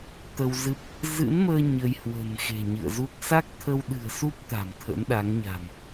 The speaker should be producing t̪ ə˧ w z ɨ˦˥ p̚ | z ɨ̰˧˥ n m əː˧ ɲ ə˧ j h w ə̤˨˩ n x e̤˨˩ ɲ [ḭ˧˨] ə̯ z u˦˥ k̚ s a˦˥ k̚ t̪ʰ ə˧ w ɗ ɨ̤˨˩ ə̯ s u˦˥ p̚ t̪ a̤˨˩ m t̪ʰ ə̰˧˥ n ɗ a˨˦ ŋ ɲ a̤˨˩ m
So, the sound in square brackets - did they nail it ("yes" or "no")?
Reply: no